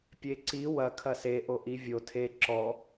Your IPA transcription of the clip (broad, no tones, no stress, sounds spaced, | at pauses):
pʲ e ǀ i w ɐ kʰ ɐ s e ʔ o ʔ i vʲ o tʰ e ǁ ɔ